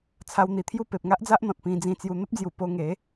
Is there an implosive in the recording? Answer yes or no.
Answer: no